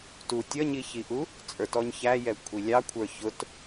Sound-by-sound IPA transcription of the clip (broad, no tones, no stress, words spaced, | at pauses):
tu tʲʌɲiçiʔu | t͡sʼə˞tɔɲçæjɛ kʷʰilʲɑkʷʰə˞ çʊt